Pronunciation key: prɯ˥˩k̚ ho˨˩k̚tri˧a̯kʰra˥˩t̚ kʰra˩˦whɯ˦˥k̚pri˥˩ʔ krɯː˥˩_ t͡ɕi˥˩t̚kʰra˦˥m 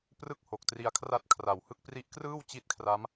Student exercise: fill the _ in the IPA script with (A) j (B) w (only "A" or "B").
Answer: B